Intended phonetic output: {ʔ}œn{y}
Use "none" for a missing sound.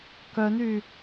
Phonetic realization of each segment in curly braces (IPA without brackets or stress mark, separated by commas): k, y